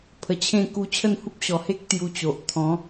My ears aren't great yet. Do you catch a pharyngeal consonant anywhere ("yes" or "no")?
no